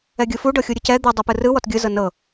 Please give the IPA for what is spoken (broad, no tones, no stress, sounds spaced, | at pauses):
ɛ ɡʲ ɯ f u ɖ ɤ xʲ u ɾʲ ɯ c ɛ d̪ ɯ dˤ ɛ p ɯ r ɯ w ɔ t ɡʲ ɯ z ɤ n ɤ